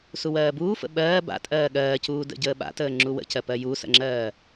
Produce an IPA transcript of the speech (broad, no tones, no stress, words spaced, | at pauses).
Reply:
suwɜːbuːfə̰ ɓɜː ba̰ tʼɜːɠɜːcuː də̰ɟəːɓa̰təː ŋ͡ǁuwə̰cɜpɜ jusə̰ŋ͡ǁɜː